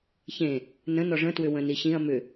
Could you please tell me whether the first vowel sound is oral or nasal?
nasal